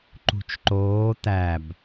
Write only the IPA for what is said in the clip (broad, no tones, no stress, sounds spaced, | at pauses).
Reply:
ǃ ṳ t͡ʃ ǃ oː t̪ æ b